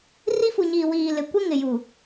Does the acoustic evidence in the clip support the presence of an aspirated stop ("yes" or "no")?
no